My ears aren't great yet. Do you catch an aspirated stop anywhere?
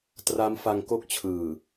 yes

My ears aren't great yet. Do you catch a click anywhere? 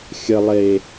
no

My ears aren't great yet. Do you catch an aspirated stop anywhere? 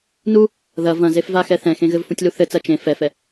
no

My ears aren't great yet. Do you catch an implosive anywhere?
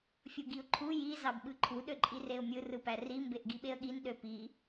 yes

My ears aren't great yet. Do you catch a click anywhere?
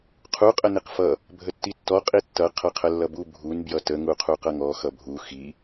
no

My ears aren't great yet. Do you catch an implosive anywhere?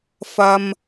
no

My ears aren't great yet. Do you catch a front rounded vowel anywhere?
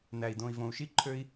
yes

